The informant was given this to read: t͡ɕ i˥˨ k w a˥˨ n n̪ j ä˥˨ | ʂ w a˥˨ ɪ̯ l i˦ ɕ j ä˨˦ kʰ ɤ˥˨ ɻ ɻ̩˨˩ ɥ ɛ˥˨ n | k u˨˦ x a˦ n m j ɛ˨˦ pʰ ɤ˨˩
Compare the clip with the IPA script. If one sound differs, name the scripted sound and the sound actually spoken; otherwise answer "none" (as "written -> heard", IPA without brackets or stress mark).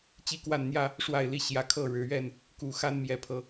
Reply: none